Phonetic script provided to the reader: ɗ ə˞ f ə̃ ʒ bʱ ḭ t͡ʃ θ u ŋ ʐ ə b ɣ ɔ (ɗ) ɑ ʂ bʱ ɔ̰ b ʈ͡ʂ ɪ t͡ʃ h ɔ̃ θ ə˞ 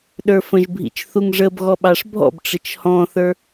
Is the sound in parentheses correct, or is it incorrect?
incorrect